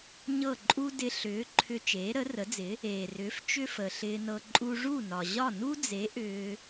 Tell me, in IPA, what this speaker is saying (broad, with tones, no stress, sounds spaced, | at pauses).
ɲ ɤ˥˩ ǃʼ u˥ d ɪ˧ ɬ ʏː˩˥ ǃʰ ʏ˧ t͡ʃ eː˩˥ ɾ ə˩˥ r ə˩˥ d͡z ɪ˩˥ | eː˩ r ʏː˩˥ f t͡ʃ ʏ˥ f ə˩ ɬ ɪː˧ n ɤ˧ ǃʼ u˧ ʐ u˥˩ n ɒ˩ ʑ ɒ˥˩ n u˥ d͡z e˩˥ ʔ ʏː˧